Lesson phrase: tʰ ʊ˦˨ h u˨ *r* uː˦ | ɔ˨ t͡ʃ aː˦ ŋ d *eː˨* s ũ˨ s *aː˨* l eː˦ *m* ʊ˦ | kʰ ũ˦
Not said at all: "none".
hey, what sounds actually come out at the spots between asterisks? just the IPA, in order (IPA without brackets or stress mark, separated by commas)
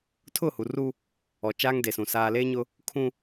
r, e˨, aː˨, ɲ